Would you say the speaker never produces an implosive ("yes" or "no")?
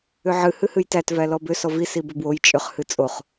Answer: yes